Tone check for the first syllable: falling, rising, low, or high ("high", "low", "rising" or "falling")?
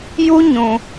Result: high